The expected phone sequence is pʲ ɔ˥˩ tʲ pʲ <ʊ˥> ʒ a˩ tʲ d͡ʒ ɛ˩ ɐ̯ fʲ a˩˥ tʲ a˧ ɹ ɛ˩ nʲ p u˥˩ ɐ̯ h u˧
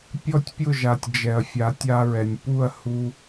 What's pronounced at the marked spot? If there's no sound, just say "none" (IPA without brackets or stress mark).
ʊ˥˩